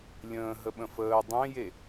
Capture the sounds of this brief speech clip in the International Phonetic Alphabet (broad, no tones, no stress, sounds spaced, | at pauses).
lʲ ə̃ː ɦ ə ɓ ə̃ f əː dˤ ẽ j e